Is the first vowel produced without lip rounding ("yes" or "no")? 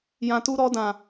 yes